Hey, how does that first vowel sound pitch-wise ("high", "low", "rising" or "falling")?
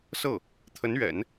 falling